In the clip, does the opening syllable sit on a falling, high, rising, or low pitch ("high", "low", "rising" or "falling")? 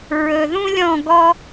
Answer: low